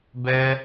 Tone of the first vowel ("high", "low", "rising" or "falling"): high